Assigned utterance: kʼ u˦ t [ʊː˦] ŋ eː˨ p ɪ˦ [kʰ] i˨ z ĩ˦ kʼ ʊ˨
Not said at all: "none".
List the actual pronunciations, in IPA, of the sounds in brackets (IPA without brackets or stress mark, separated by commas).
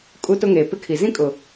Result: ʊ˦, kʰ